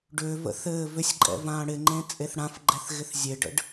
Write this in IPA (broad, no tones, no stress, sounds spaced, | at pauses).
ɖ ʏː v ə̰ θ ɘː v ʏ sʲ ǃʼ ɛ̰ v ãː ɽ ɪ ŋ͡ǃ ẽ t͡sʼ e θ ɽ ã f ɡ͡ǃ ɛ θ ɣ ɪ θ zʲ e ɖ ə̰ ɖ